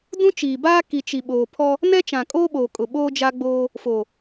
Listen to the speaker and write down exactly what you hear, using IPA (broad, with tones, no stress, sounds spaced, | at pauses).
d ũ˦ t͡ʃ iː˨ b aː˦ k i˨ t͡ʃ i˨ ɓ oː˨ pʰ ɔ˦ | n ɛ˦ t͡ʃ ã˨ kʼ oː˦ ɓ oː˨ kʼ ʊ˨ ɓ oː˦ d͡ʒ a˦ ɡ͡b oː˦ | f oː˨